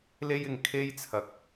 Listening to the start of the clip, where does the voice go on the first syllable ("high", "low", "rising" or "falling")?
high